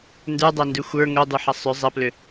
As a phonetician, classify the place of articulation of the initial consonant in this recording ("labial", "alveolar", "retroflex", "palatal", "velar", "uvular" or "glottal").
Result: alveolar